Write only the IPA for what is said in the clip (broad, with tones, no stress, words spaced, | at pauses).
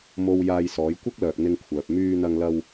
mo˨w jaː˧jsɔː˨˧jkʷɐ˥k̚ lœː˨k̚n̪ɪ˧ŋkʷʰœː˨p̚ myː˧ n̪ɐ˧ŋ lɐ˧w